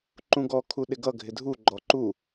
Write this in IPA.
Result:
ǃ ũ ɡ ɔ kʰ u ɗ ɪ ɡ ʌ ɡʱ ɪ dʱ u ɡ͡ǃ ɔ ǃ u

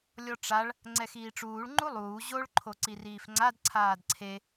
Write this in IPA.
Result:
lʲ ɔ ʈ͡ʂ a ɭ | ŋ͡ǀ ɛ x iː ʈ͡ʂ uː ɭ ŋ͡ǃ u lˠ uː ʑ o ɭ ǃʰ o ǀ i r iː f ŋ͡ǀ a d ǀʰ aː d ǀʰ e

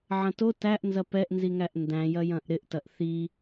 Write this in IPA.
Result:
ʕ ɐ̃ t o t æ ʔ n z ɐ p ɛ ʔ n z i ŋ æ ʔ n d æ̃ j ɐ j ɐ̃ ʔ ɾ ɪ ʔ t ɐ ʔ θ i

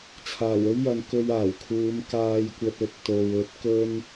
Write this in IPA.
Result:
t͡sʰ aː˨˩ w ɵ˥ ɥ j ɐ˨˧ n k ɵ˧ ɥ aː˨˩ w kʰ uː˨˧ m k aː˨ j kʷ ɐ˨ t̚ ɵ˧ t̚ t̪ o˨ w ɵ˧ t̚ k ɵ˥ n

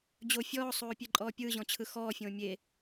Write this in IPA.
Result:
d͡ʑ o fʲ ɔː sˤ oː pʲ e ǃʼ ɔː pʲ ɯː ʑ ɔ̃ t͡ɕʰ ɯ x ɔː fʲ õː mʲ e

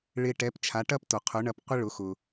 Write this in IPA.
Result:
ɭ ɪ˧ ʈ ɛ˩˥ p t͡ʃʰ a˩˥ ʈ ɐ˥ p t o˩ qʰ ʊ˩˥ ɳ ɐ˧ p qʷ ɪ˥ ɭ ʊ˩˥ x ʊ˩

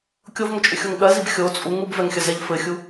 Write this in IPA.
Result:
kʲ o v ŋ ə t͡ʃʼ ʏ xʲ o ŋ ɠ ɜ z i b xʲ o t͡sʼ u ŋ u b v ɛ ŋ xʲ ə z ɛ ʎ f ɘ xʲ u

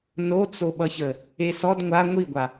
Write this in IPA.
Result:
n o t͡s o ɓ ʌ ç ə | e s ɔ d ŋʷ a ŋʷ i ɡʷ a

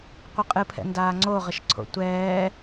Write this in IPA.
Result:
qʷ ɨ qʼ ɨ pʰ ɛ̰ n d aː ŋ͡ǀ o ʁ ə ʃ ǀʰ o̰ tʷ ɛː

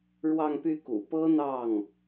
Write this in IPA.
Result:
ɻ w ɑ˥˧ ŋ p y˥˩ k ṵ˨˩ p ɤ˥ n̪ ɑ˥˩ ŋ

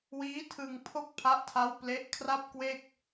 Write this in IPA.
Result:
w iː˦˥ tʰ ɯ˧ ŋ pʰ o˥˩ k̚ pʰ a˦˥ ʔ tʰ a˦˥ w p l e˦˥ ʔ kʰ r a˥˩ p̚ k w e˥˩ k̚

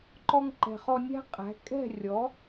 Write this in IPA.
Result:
ǃ ɔ˧ ŋ ǃ ɛ̤˩ χ ɔ˧ nʲ æ̤˥ qʼ æ̤˩˥ kʼ ɛ̤˥˩ rʲ ɔ˩˥

